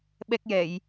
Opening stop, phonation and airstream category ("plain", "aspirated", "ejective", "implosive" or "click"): implosive